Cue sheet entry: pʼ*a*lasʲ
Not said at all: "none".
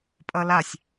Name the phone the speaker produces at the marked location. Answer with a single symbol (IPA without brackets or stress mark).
ʌ